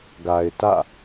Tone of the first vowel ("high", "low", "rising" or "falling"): low